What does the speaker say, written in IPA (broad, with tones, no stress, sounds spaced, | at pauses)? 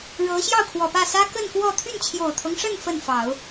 ɻ ɤ˧˥ ɕ j ɑ˥˩ ʊ̯ kʰ w ɔ˨˩ p ä˥˩ s ä˥ k ə˥˧ n k w ɔ˥˧ t̪ʰ y˥˩ n t͡ɕʰ j o˨˩ ʊ̯ t̪ʰ ɤ˦ ŋ ʂ ə˥˧ n f ə˥˩ n f ɑ˨˩˦ ʊ̯